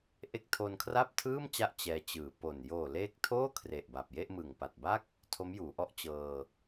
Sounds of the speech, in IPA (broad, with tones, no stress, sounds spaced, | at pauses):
ʔ e˦˥ k̚ tʰ o˧ n kʰ r a˥˩ p̚ tʰ ɯː˥˩ m t͡ɕ a˥˩ ʔ t͡ɕ ɛː˧ t͡ɕ ɯː˩˦ p o˨˩ n j oː˨˩ l eː˦˥ k̚ tʰ oː˥˩ kʰ r e˨˩ ʔ b a˨˩ p̚ j e˥˩ ʔ m ɯ˨˩ ŋ p a˨˩ t̚ b a˥˩ k̚ | tʰ o˦˥ m j uː˩˦ ʔ ɔ˦˥ ʔ t͡ɕ ɤː˧